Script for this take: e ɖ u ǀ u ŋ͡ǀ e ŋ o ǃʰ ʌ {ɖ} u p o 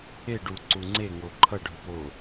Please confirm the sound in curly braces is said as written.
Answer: no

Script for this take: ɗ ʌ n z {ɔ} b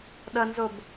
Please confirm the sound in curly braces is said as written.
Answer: no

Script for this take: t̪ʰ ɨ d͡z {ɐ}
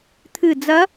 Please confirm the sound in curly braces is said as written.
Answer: yes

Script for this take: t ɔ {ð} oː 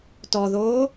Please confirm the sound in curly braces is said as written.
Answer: yes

